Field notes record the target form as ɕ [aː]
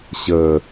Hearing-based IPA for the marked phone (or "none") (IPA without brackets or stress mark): əː